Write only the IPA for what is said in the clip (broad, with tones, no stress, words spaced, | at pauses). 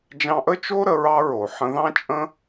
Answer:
d͡ʒɑ̃˧ʔə˦t͡ʃo˦ ɾə˧ɹɑ˦ɹo˨ ħə̃˧ðɑ̃˦t͡ʃʼə̃˦